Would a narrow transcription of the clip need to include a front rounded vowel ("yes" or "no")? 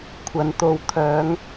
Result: yes